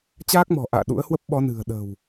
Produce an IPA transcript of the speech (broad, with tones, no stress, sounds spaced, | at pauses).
t͡ɕ aː˦˥ k̚ m ɔ̤˨˩ ʔ a̰ː˧˨ ɗ ṵ˧˥ ə̯ h w ə˦˥ p̚ ɓ ɔ˨˦ n ɨ̤˨˩ ə̯ ɗ ə̤˨˩ w